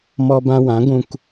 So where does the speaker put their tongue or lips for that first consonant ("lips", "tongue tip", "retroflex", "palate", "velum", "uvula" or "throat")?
lips